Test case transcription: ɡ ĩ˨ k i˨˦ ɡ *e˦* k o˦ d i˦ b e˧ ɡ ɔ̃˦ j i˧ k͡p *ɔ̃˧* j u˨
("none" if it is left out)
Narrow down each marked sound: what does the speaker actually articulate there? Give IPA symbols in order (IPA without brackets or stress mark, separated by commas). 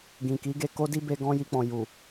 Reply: e˧, ɔ̃˨